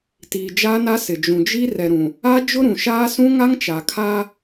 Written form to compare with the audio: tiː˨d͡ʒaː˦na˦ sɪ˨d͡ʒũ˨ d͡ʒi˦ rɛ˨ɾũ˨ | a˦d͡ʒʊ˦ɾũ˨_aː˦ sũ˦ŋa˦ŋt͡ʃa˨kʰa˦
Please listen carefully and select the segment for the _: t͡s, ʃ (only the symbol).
ʃ